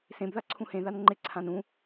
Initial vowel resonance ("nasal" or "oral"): nasal